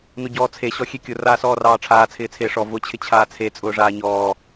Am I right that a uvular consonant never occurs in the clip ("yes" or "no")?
yes